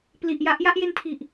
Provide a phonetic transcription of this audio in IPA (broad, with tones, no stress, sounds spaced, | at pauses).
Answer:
p l i˨˩ ʔ j a˥˩ ʔ j a˥˩ ʔ j e˧ n tʰ i˨˩ ʔ